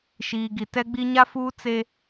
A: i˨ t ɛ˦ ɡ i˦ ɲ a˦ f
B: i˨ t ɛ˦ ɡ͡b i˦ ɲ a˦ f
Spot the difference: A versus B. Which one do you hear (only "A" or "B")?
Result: B